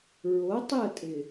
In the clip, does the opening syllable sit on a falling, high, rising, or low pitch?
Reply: rising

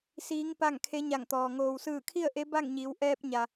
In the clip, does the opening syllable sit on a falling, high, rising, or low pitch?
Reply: rising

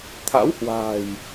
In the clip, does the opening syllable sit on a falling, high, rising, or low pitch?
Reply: rising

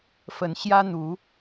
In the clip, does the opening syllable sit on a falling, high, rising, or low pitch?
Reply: rising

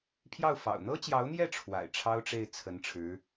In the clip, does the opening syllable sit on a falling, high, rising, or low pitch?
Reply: falling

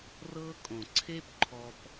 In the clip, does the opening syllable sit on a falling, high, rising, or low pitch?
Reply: high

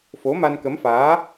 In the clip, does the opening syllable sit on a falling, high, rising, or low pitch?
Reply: rising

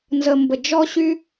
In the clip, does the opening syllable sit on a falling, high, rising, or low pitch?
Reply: low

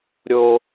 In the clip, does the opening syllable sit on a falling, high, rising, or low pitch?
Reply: high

